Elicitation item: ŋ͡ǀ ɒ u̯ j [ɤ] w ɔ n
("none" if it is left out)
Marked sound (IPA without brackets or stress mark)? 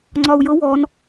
ɤ